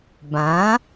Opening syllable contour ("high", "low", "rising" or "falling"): rising